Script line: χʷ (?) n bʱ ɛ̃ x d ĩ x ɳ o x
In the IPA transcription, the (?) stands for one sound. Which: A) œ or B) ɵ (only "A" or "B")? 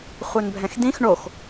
A